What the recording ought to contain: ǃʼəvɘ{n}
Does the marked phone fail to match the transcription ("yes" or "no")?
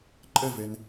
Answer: no